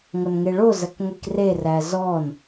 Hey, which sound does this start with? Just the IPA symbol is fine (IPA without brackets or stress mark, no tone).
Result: ŋʷ